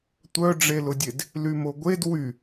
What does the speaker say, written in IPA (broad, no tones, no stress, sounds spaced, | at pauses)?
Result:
tʷ œ ɖ͡ʐ e l ʊ dʲ e d | l y m o ɡʷ e d w y